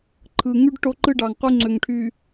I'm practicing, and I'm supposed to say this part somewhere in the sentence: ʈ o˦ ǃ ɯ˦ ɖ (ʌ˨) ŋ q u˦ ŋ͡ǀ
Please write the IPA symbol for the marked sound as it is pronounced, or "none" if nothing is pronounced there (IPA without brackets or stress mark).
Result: ɑ˨